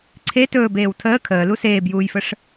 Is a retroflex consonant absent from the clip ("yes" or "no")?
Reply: no